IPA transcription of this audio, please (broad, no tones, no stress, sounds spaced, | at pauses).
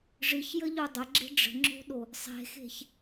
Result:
ʐ ɨ ç j ə ʎ o dˤ ə ɡ͡ǁ e̤ ɖ͡ʐ ə̤ ŋ͡ǁ o̤ ɗ o | sˤ e̤ x e̤ ç